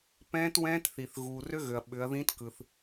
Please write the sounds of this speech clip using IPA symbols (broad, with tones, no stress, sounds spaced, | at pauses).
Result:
p ɛ̃ː˦˥ t w ɛ̃ː˦˥ t θ i˨ θ ɣ uː˨ r ø˦˥ ɣ ø˨ ɐ̯ ɓ ʏ˨˦ ɐ̯ ð ĩ˦˥ t k ɯ˨ θ